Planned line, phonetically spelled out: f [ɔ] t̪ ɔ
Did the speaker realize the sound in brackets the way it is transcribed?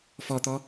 yes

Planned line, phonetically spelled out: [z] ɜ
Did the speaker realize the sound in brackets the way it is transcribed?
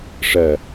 no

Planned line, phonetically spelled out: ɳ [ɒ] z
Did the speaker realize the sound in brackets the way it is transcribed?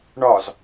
yes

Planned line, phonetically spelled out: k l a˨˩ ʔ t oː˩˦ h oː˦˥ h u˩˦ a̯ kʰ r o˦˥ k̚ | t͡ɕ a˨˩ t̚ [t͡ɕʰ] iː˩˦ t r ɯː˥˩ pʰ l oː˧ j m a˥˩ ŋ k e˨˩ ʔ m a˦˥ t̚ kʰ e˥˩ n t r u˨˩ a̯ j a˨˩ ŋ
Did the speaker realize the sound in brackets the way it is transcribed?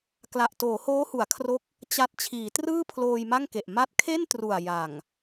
yes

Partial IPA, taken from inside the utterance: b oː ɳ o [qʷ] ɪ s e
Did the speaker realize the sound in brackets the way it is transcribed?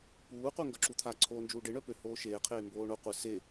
yes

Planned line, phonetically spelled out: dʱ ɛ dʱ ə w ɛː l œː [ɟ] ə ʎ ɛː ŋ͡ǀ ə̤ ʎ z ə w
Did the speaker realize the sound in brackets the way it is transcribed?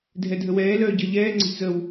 yes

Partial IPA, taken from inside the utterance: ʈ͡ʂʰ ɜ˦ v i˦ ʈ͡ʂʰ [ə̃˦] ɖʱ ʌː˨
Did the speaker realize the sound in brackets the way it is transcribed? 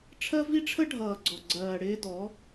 no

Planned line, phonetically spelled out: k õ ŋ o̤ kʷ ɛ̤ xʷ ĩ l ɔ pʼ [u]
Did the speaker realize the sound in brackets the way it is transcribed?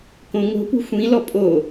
no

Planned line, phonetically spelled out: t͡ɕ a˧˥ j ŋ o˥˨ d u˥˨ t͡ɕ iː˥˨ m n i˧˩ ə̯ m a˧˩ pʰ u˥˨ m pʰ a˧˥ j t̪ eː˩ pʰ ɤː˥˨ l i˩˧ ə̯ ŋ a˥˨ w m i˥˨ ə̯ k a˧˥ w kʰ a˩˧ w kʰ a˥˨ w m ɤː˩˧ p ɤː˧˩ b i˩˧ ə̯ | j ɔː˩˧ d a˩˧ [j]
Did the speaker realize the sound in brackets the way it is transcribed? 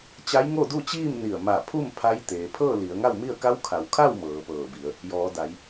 yes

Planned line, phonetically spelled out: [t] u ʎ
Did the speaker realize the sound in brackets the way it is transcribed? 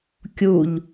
no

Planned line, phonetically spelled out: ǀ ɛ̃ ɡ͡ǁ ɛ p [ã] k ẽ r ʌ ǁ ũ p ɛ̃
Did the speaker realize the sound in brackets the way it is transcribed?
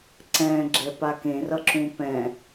no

